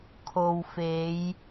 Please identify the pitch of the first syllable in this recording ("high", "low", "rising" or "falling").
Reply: low